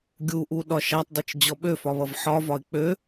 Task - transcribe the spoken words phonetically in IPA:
ɡʲuʔu ɗɒʃatˤdˤit͡ʃ d͡ʑɔɓøfɒ βʌvħɒvɒɪ̯ k͡pø

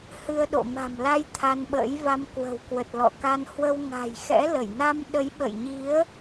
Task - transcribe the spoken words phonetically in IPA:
hɨ˧ə̯ɗo̰˧˨ma̤˨˩m la˧j t̪ʰa˧nɓə̰ː˧˥jva˧m kwə̤˨˩wkwə˨˩t̚lɔ̰˧˨ka˧n hwə˧w ŋa̤˨˩jxɛ̰˧˥ lə˧˩jna˧m ɗə˨˦jɓə̰˧˨jɲi˨˦ə̯

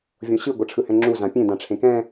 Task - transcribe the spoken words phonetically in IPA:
vʲõɕɯ ɡʷʌʈ͡ʂʰɯhɛ̃ŋ͡ǁu zãpʲẽ dãʈ͡ʂʰẽkɛ̃

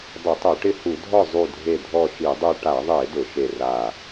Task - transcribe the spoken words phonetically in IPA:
dˤɪ˧˩˧tˤo˧˩˧ʈɪ˦˨ hu˧˩˧dʱɔ˦˨ zˤu˦˨dʱe˦˨ dʱɔ˦˨ʃi˧˩˧dˤu˦˨ ʈa˧˩˧ðˤe˧˩˧ dʊ˧˩˧ʃe˦˨ ra˦˨

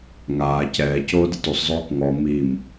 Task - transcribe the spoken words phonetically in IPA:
ŋaː cɛː coːdɪtusˤzˤoːk ŋɔ mim

